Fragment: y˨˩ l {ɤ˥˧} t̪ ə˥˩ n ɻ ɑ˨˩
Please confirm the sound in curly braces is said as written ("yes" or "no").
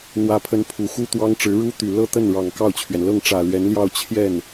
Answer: yes